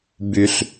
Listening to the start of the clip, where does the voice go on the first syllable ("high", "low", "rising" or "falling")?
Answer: low